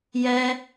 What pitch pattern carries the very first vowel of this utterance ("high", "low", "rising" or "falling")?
high